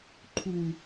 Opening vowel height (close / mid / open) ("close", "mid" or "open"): close